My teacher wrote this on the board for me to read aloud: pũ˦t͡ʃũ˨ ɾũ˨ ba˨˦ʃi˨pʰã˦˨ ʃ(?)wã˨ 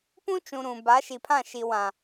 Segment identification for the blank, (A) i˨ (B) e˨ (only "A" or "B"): A